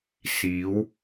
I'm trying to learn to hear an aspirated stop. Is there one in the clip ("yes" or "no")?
no